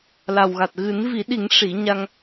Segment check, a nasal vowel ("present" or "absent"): absent